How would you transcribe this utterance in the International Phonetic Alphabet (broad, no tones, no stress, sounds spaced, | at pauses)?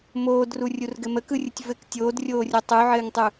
m oː d r u rʲ u r ɡ ɘ m ə k ɯ rʲ ɯ tʲ v ɘ k tʲ oː d rʲ oː rʲ o tˤ u ʕ ɘː ŋ tˤ u